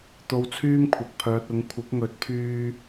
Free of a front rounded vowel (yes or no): no